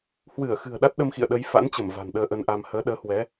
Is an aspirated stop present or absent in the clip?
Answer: absent